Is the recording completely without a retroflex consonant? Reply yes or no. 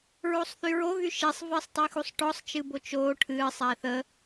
no